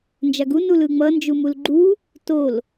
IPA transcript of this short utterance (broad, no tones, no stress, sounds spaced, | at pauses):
n d͡ʒ a ɡ u n u l ɯ ŋ͡m ʌ n d͡ʒ u m u l ɡ͡ǃ u | t o l